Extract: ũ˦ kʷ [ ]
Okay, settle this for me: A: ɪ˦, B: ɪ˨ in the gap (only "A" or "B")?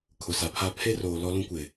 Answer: B